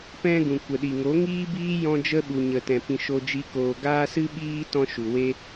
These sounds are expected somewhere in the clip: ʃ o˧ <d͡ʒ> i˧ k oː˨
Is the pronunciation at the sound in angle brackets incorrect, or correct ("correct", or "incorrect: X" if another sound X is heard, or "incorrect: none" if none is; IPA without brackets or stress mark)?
correct